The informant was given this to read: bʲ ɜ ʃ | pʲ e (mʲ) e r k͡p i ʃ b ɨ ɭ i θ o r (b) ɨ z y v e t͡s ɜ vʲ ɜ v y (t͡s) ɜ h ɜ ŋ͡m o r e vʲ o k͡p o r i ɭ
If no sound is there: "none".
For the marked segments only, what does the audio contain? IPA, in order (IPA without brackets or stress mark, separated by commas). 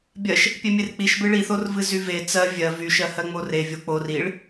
mʲ, v, ʃ